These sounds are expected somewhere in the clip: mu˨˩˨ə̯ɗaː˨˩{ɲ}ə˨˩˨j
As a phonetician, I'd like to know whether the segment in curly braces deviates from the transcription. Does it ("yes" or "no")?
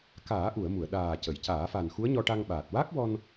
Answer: yes